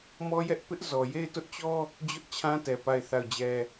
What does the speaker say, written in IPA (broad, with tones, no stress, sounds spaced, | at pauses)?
m ɔ˦ j ɛ˦ ʔ p ɪ˦ ʔ z ɔ˨ j e˦˨ ɪ̯ t ʊ˦ ʔ t͡ɕ ɔ˦ | d͡ʑ ʊ˦ ʔ t͡ɕʰ ã˦ t ɛ˨ p a˦˨ ɪ̯ θ a˦˨ ʊ̯ d͡ʑ ɛ˦